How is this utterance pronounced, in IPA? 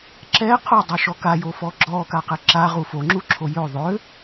ǁ ɛ qʰ o dˤ ø ʃ ɔ k a j o f ɔ ɡ͡ǁ ɔ k a q ɛ ǁ a ʁ u f o ŋ͡ǁ u ǁʰ o j ø ðˤ ø

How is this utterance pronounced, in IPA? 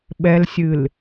ɓ ɛ l sʲ ɨ l

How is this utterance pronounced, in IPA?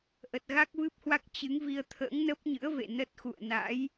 ʔ ə˨˩ t̚ ɣ a˦˥ k̚ v ɨ˦˥ p̚ h w a˦˥ k̚ t͡ɕ ɨ˨˦ ŋ v i˧ ə̯ t̪ʰ ə̰ː˧˥ ŋ n ə˦˥ p̚ ɲ ɨ̰˧˥ ə̯ v ḛ˧˨ n ə˦˥ t̚ x ṵ˧˨ ə̯ n a̰˧˥ j

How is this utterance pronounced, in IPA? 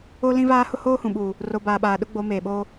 o˦ l ĩ˦ v aː˦ h ʊ˦ h oː˦ h ũ˨ ɓ uː˨ | r o˨ b aː˨ ɓ aː˨ ɗ ʊ˦ ɡ͡b o˨˦ m eː˨ ɓ oː˦

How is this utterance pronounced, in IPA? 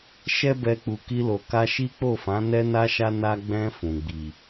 ʃ ɛ˦ b ɛ˧ k͡p u˨ k i˧ l o˨ k a˧ ʃ i˦ k͡p o˦˨ f ã˨˦ n ɛ˦ n a˦ ʃ a˦ n a˧ ɡ͡b ɛ̃˧ f ũ˨ ɡ͡b i˨

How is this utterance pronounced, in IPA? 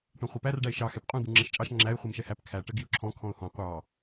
ʈ ɔ̃ χʷ ɛ p æ r ɖ æ ɪ̯ ʃ ɑ x ɛ p qʼ ũ d̪ u ŋ͡ǁ ɛ ʃ t͡ʃʼ ɑ ʃ ŋ͡ǁ æ ɪ̯ χʷ i m ʃ ɛ h æ p kʰ æ ʈ ə ɡ i ʊ̯ ǁʰ ɔ̃ kʰ ɔ̃ ʊ̯ h ɔ̃ qʷ ɑ

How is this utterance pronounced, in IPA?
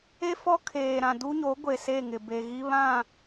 e˦ f ɔ˦ kʰ eː˨ ɾ ã˨ d u˦ ɲ o˨˦ ɡʷ e˨ s e˦˨ ŋ ɪ˨ b e˨ ɣ i˦ β ã˦˨

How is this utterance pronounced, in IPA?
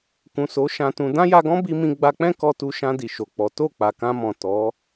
k ũ˨ s o˨˦ ʃ ã˧ t ũ˧ d ã˦ j a˧ ɡ ɔ̃˦ b i˧ m ĩ˧ ɡ͡b a˧ k͡p ɛ̃˦ k ɔ˧ t u˧ ʃ ã˧ d i˨ ʃ o˨ k͡p ɔ˨˦ t o˦˨ k͡p a˨ k ã˧ m ɔ̃˨ t ɔ˨˦

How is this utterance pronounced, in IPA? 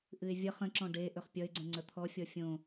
ʔ ɨ ɪ̯ vʲ ʌ χ ə̃ ǁ ɔ̃ ɖ e ʔ ɵ χ pʲ ʌ ɪ̯ ɡ͡ǀ ə̃ ŋ͡ǀ ə t̪ʰ ɔ fʲ ɔ fʲ õ

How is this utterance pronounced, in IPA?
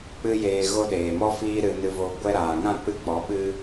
k͡p ɨ˦ j eː˧ ɣ o˦ ɗ eː˨ m ɔ˦ f iː˧ ɾ ɨ˨ n ɨ˨ v o˨ ɡʷ ɛ˦ ɾ aː˨ ŋ ã˦˨ k͡p ɨ˦ k͡p ɔ˨˦ ɓ ɨ˦

